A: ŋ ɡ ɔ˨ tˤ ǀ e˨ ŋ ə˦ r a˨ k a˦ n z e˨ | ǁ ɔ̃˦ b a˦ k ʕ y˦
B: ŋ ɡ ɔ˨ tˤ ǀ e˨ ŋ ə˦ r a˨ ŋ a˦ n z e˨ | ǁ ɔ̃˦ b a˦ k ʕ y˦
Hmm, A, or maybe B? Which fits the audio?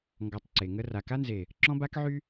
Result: A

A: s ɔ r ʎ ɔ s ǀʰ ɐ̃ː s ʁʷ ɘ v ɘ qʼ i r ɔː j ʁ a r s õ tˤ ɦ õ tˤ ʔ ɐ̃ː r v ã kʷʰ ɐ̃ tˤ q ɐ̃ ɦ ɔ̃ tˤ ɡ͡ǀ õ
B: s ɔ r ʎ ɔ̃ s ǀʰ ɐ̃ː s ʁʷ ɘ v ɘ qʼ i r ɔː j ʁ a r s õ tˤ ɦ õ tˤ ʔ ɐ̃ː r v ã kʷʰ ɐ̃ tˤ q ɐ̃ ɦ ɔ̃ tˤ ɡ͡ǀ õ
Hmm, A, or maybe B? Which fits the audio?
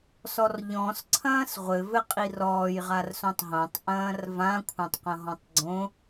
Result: B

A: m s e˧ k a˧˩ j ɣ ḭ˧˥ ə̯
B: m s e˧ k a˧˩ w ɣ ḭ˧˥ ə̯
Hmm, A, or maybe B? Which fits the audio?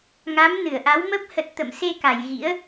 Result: A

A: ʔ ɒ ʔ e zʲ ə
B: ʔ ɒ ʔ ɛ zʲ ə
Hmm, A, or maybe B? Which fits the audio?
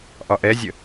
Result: B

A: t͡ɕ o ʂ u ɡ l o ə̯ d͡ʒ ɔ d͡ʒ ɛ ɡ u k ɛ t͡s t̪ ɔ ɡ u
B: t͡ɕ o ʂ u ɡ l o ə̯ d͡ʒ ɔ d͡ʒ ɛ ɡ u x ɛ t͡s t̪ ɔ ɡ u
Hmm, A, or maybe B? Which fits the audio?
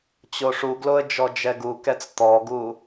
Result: A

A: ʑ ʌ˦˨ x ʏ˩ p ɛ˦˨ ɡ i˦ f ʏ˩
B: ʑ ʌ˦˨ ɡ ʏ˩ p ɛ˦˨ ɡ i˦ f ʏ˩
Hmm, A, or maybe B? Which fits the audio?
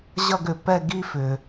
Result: B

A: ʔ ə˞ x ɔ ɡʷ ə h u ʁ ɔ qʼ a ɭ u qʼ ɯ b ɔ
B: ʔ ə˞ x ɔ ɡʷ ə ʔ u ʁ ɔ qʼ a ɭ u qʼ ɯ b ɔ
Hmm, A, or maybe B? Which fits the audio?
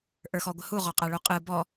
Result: A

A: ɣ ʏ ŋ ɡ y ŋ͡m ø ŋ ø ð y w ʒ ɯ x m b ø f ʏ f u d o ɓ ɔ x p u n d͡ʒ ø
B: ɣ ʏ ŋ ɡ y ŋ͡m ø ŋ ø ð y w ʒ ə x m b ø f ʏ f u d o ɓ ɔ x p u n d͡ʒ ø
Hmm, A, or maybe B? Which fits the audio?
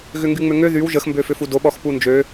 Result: B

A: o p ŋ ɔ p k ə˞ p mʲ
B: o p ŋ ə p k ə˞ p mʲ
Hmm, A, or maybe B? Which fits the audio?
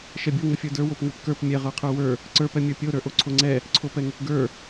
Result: B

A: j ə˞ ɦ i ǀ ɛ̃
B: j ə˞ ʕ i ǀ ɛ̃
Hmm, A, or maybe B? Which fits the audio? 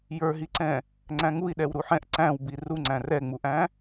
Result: A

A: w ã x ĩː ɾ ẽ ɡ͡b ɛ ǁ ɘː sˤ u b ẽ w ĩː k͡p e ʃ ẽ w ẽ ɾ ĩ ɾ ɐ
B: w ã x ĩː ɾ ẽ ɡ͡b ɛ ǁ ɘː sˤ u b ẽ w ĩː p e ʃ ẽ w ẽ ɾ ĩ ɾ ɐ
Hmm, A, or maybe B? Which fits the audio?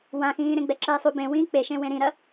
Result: A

